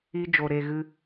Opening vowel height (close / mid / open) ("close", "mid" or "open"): close